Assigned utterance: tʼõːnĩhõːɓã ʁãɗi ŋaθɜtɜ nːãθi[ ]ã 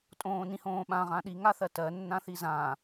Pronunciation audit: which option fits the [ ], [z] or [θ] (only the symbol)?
z